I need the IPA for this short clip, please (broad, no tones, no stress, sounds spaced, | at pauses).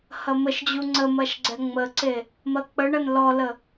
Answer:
h ɐ m ə ʃ d͡ʑ u ŋ͡ǀ ə m ɐ ʃ ɡ͡ǀ ɛ ŋ͡m ə ǀ e | m ɐ k͡p ə ɳ ɐ n l ɔ l ə